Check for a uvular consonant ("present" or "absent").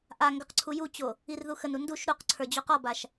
present